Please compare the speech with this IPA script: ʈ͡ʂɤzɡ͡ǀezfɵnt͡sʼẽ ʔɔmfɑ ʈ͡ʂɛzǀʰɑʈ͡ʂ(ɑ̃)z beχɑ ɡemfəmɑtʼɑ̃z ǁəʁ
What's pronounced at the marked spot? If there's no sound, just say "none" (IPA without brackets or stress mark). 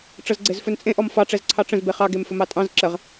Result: ə̃